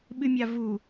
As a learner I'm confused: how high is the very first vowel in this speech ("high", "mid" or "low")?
high